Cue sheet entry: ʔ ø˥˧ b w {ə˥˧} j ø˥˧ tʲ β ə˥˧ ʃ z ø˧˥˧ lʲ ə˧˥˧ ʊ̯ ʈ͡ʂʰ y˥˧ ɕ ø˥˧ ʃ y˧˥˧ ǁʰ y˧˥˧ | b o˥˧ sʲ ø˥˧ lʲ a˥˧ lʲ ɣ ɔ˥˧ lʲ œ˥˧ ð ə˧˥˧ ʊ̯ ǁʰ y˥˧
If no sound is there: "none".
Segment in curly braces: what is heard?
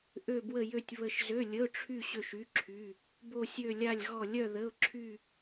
ə˥˧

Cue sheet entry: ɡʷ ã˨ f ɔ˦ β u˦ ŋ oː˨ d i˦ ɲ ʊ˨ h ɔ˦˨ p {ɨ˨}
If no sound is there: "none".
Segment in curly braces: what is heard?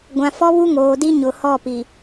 i˨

